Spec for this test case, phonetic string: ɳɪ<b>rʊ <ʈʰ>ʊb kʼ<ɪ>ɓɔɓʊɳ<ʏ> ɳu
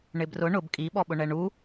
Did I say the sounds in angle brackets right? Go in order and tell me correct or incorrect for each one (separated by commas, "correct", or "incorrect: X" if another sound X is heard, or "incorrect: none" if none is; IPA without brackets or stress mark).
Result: correct, incorrect: ɳ, incorrect: i, incorrect: ɛ